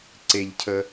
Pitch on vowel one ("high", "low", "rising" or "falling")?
low